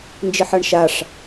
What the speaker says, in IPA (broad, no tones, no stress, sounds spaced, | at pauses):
n d͡ʒ ɪ ħ ʌ ɳ ʃ a ʂ